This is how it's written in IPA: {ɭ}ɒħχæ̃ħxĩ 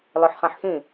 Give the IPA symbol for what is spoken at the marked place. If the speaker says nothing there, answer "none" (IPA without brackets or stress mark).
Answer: l